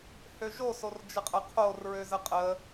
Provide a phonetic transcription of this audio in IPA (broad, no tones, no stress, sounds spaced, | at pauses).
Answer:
h ø ʒ o s o r d͡ʒ ə qʼ ə qʰ o r ɹ ø z ə qʼ ə